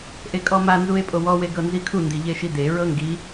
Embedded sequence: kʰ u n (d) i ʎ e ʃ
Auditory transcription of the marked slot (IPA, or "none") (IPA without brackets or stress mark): d